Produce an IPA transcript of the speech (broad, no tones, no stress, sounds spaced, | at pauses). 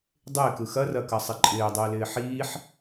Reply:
dˤ ɪː k ɯ x ɐ r ɐ k ɐ sˤ ɪ ǃʼ ɪː dˤ ɪː l ɪː ħ iː ħ